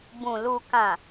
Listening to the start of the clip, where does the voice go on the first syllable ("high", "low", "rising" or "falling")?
low